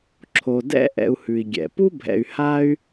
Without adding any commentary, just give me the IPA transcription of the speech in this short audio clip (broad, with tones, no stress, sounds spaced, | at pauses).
ǁʰ o˨ d ɛ̰˥ ʔ ɛ̰˨ u̯ h ʉ˩ i̯ ɡʲ ɛ̰˩ p u˥ bʱ ɛ̰˨ y̯ h a˥ y̯